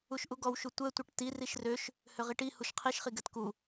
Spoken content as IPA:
u ʃ ʔ u ɡ ɔ w ʃ u tʷ ɛ tʷ ɛ ʈ t i r i ʃ r ø ʃ | h ø ʁ i ʈ i h u ʃ qʰ i ʃ χ i ɡ ɛ t k u

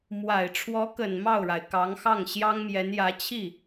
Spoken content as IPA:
m w a˨˩ ɪ̯ ʈ͡ʂʰ w ɔ˧˥ k ə˨˩ n m ɑ˥˩ ʊ̯ ɻ a˩ ɪ̯ k ɑ˧˥ ŋ x ɑ˥˩ ŋ ɕ j ɑ˥ ŋ m j ɛ˧˥ n j ä˧˥ t͡ɕʰ i˥˩

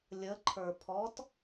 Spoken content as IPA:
lʲ ə ǃʰ ə˞ pʰ ɔ t

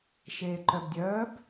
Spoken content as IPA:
ʃ eː ǃ œ b dʲ œː b

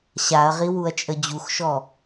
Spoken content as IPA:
ɕ a ɐ̯ ʁ i w u ɐ̯ t͡ʃʼ ə d͡ʑ u x ʃ ɔ

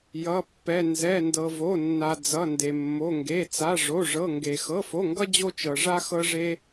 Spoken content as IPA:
j ʌ˧˥˧ pː ɛ˧˥˧ n z ɛ˧˥˧ n d ɤ˧ v o˧˥˧ nː a˧ d͡z ʌ˧˥˧ n d e˧ mː o˧˥˧ ŋ ɡ e˧˥˧ t͡s a˧˥˧ ʐ o˧˥˧ ʐ ɤ˧˥˧ ŋ ɡ e˧ x ɤ˧˥˧ f o˧˥˧ ŋ ɡ ʌ˥ d͡ʑ o˥ t͡ʃ ɤ˧ ʐ a˥ x ɤ˥ ʐ e˥

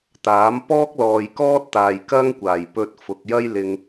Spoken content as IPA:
t̪ aː˨˥ m p ɔː˥ k̚ l ɔː˨ j k ɔː˥ t̚ t̪ aː˨ j k ɐ˥ ŋ kʷ aː˨˩ j p ɵ˧ t̚ f ʊ˨ k̚ j ɐ˥ j l ɪ˧ ŋ

